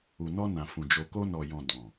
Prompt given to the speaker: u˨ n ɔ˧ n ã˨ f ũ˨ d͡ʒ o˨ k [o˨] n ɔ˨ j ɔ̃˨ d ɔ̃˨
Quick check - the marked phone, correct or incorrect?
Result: incorrect